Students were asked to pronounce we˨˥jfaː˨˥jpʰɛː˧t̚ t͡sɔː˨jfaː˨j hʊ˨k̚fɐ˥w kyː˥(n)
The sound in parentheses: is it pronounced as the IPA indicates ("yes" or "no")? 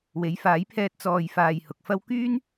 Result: yes